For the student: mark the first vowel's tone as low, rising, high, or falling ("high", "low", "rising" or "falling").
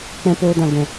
high